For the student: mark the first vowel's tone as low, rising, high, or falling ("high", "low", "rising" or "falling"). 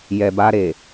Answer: low